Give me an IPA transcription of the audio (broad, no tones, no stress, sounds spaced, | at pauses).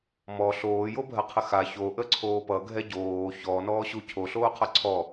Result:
m ɔ ɬ oː j o bʱ ɜ qʰ ə x a ç o ʔ ə ǀʰ oː p ʌ ɡʱ ɛ ɟ oː ç ɔ n ɔː ɕ u cʰ o ɬ oː qʰ ʌ ǀʰ ɔ